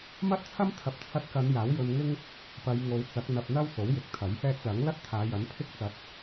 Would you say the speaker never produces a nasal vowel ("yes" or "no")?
yes